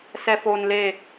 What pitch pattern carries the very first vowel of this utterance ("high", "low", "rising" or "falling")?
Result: low